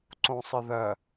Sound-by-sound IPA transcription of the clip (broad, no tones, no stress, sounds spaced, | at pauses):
ǀ õ sˤ ɪ ð ɜ